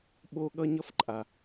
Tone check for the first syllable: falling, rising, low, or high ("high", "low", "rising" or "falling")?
high